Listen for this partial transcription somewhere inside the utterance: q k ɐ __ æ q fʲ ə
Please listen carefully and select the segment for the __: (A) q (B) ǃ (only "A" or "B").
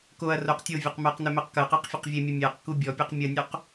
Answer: A